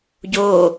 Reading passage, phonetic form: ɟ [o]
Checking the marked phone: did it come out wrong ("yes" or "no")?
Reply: no